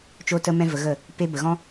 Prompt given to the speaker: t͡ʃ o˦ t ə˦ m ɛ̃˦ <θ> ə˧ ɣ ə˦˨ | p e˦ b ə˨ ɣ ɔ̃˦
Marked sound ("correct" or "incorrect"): incorrect